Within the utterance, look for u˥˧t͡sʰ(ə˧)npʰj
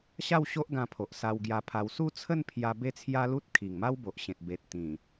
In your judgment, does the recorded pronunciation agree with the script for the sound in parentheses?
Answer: no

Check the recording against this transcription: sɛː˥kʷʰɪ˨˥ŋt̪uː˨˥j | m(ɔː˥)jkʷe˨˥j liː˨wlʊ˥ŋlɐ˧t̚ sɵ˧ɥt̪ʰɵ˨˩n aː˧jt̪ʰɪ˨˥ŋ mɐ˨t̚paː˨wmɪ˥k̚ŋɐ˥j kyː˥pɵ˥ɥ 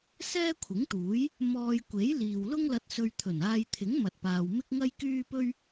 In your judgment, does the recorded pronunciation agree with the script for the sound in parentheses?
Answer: no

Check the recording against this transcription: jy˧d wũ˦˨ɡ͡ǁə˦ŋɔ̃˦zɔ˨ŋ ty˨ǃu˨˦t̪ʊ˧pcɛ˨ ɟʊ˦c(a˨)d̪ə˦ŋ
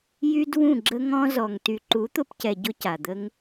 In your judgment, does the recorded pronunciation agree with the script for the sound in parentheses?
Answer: yes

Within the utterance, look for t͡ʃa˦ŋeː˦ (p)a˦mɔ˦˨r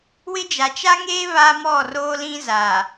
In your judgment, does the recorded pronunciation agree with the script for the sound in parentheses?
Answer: no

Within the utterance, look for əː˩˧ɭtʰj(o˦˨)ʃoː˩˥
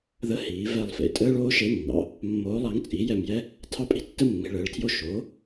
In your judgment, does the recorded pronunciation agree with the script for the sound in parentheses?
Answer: yes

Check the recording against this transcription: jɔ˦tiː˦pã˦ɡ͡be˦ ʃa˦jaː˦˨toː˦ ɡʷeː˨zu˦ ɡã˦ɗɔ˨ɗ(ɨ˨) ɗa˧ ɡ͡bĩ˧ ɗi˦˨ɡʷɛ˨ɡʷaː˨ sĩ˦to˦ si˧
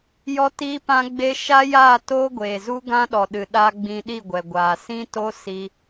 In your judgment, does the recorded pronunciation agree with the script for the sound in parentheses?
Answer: yes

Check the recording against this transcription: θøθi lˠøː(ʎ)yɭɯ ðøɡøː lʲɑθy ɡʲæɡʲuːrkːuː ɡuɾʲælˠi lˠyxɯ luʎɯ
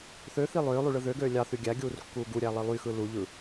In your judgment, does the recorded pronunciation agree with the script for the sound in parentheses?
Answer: no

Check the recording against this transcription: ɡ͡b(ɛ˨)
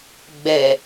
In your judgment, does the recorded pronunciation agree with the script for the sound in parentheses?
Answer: no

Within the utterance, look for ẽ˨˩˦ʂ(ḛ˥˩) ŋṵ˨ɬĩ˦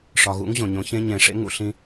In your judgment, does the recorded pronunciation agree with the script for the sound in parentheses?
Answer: no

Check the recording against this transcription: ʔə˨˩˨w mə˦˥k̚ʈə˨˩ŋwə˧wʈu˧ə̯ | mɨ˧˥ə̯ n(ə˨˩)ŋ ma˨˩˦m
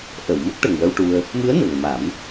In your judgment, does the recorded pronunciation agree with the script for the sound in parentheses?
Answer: yes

